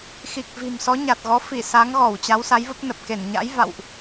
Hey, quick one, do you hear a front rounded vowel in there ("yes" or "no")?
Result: no